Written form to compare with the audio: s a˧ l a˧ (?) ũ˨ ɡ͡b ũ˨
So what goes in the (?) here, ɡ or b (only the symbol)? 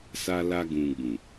ɡ